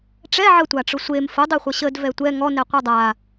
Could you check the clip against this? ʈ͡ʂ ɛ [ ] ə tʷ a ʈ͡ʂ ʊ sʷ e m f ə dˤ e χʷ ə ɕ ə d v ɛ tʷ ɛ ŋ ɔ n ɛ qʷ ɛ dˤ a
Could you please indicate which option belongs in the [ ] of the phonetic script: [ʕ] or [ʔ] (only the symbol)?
ʕ